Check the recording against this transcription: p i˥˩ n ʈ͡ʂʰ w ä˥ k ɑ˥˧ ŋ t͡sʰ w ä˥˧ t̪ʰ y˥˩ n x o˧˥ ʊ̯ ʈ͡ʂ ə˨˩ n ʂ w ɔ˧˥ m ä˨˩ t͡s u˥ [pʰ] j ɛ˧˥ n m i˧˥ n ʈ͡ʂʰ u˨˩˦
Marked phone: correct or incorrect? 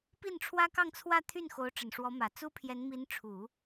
correct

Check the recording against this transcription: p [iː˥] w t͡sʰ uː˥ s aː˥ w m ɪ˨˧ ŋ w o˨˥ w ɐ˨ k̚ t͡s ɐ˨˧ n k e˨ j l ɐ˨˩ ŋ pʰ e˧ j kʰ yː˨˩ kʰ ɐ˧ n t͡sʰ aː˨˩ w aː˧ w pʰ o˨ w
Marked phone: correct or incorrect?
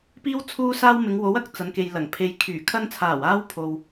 correct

